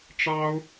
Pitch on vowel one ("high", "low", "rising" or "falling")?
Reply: high